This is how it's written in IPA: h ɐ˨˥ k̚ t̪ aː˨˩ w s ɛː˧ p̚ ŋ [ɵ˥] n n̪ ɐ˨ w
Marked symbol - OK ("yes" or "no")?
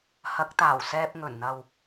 no